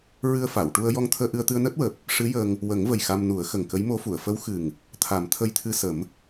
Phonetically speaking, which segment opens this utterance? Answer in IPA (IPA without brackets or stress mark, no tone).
ɹ